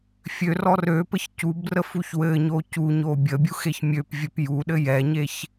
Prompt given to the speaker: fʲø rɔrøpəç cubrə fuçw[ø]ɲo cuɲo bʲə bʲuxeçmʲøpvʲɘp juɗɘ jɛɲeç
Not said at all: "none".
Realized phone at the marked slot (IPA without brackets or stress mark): ɘ